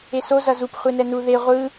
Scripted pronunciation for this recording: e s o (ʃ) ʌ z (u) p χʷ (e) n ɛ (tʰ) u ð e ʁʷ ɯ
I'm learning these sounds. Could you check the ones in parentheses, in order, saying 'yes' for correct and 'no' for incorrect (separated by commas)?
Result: no, yes, yes, no